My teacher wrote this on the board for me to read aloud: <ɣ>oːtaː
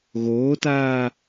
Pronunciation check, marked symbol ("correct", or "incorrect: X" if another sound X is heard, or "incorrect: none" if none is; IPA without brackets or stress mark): correct